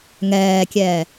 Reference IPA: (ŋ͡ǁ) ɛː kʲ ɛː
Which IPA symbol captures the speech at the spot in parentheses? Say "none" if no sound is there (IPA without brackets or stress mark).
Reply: ŋ